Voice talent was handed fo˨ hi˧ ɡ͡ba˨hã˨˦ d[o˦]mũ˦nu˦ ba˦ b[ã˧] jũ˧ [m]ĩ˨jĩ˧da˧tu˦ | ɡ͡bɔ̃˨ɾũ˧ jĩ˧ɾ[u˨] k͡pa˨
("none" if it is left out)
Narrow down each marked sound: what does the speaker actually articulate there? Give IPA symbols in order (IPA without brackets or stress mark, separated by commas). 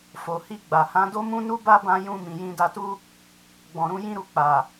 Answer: o˦, ã˧, m, u˨